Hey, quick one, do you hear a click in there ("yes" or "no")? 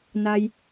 no